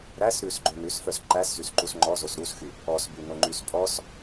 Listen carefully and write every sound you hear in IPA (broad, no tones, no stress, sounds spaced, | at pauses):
ɾ æ s ɾ ʉ s ɡ͡ǃ ø n ʉ s f œ s ǃ æ s z y s ǃ u s ŋ͡ǃ ɔ z o s ɾ u s x y | ɔ s b y n o ŋ͡ǃ y s pʼ ɔ s